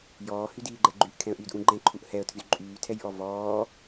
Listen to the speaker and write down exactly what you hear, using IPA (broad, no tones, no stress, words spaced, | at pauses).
jɔːhydiːɡ͡ǃɛ ɡ͡ǃyʔkʰɛ̃ə̯ʔyːdʔũ ɡ͡ǃɛ̃ǃʰuʔ hɛə̯tʰyz ǃʼyːtʰɛjʔɔ vɔː